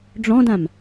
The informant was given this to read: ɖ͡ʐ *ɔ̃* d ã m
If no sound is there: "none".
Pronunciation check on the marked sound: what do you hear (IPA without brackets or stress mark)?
ɔ̃